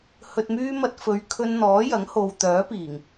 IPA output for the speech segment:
h ɵ˨ t̚ m yː˧ m ɐ˧ t̚ f ɵ˨˧ ɥ kʰ ɵ˧ n n̪ ɔː˨˥ j ɐ˨˥ ŋ h o˨ w t̪ œː˨˥ p iː˨˩ ŋ

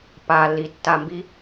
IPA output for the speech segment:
p a lː i tː a m b i

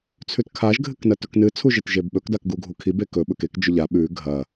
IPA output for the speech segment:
t͡sʰ ʉ t kʰ a ʒ ɡʱ ɨ k n ɐ t ɵ k n ɨ t͡sʰ u ʒ e t ʒ e b ɓ ɵ k d a k ɡ u ɡʱ u kʰ i b e k ɵ ɓ ɵ k e k d͡ʒ ɵ ʎ a ɓ ʉ ɡʱ ɐ

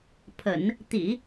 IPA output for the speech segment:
pʰ ə̰˨˩˦ n | t̪ ḭ˨˩˦

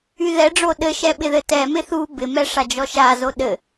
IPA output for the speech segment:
y ð ɛ ɖ͡ʐ o ɗ ɘ ʃ ɛ ɓ ɪ ð ɘ t ɛ m ɪ θ u b ɪ m ɛ ʂ a d͡ʒ ɔ ʃ a z o ɗ ɘ

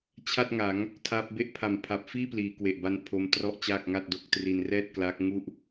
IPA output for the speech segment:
t͡ɕʰ a˥˩ t̚ ŋ a˩˦ ŋ | tʰ a˦˥ p̚ b e˦˥ ʔ pʰ a˨˩ m pʰ a˨˩ p̚ f iː˥˩ p l iː˩˦ k w e˨˩ ʔ b a˧ n pʰ o˦˥ m t r ɔ˥˩ ʔ t͡ɕ aː˥˩ k̚ ŋ a˥˩ t̚ d o˦˥ k̚ t r i˧ n r ɛː˥˩ t̚ k l aː˦˥ k̚ ŋ u˥˩ ʔ

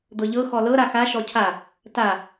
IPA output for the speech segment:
d̪ ɤ ʎ ɤ x ɔ l ɤ ɾ a x a ʃ ɔ cʰ a | t a

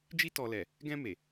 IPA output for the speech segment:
d͡ʒ i˧ t ɔ˨ l ɛ˨ | ɡ ɛ̃˧ m e˨

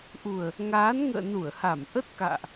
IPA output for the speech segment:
ʔ u˨˩ ə̯ | ŋ aː˨˦ n ŋ ə̰ː˧˨ n u˧˩ ə̯ h a˧˩ m ʔ ə˦˥ t̚ k a̰ː˧˨ ʔ

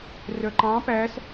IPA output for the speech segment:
r œ ǃ ɑ̃ p æ s

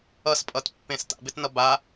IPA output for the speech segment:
ʌ s pʼ ʌ t pː ẽ s t a̰ b ɪ t n ʌ b a

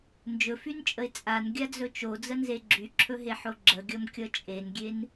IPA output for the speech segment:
n d͡ʒ ɵ f y n t͡ʃʼ ə ɪ̯ t͡sʼ a n ɡʲ a d͡z ɵ t͡ʃ o d͡z ə n z e ɡ͡ǁ y ǁʰ ɵ ɦ e ħ o ɡ͡ǁ ə ɡʲ ʌ m kʲ ʌ t͡ʃʼ e n ɡʲ e n

